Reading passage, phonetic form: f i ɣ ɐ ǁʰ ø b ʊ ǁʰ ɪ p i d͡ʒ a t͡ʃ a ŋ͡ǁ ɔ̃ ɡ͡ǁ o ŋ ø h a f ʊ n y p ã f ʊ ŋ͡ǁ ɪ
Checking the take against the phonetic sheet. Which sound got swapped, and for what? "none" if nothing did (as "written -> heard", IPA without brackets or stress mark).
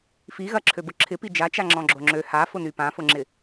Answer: ŋ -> ŋ͡ǁ